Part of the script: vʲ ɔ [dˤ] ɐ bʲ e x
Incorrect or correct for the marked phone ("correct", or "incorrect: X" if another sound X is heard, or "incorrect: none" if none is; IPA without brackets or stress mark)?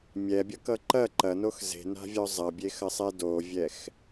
incorrect: zˤ